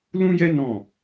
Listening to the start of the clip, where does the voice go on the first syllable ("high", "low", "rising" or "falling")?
high